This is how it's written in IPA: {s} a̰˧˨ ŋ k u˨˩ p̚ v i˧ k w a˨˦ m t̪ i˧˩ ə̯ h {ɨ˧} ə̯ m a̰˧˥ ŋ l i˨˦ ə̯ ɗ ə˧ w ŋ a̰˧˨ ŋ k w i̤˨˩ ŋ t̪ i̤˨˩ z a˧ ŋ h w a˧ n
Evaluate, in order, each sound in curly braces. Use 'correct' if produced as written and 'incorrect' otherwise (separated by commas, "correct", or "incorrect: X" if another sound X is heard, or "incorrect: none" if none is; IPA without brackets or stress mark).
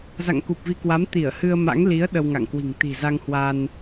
incorrect: z, correct